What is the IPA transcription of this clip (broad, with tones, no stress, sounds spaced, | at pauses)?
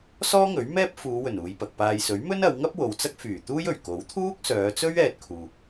s ɔː˥ ŋ ɵ˨˥ ɥ m ɛː˥ p̚ f uː˨˧ w ɵ˨˩ n uː˨˧ j p ɐ˨ k̚ p aː˧ j s ɵ˨˥ ɥ m ɵ˥ n ɐ˨˧ w ŋ ɐ˥ p̚ w o˨ w t͡s ɐ˥ k̚ f yː˨˩ t̪ uː˥ j ɵ˨˩ ɥ k o˨˥ w t̪ʰ uː˥ k̚ s œː˨˧ t͡s ɵ˥ ɥ ɛː˧ t̚ kʰ uː˨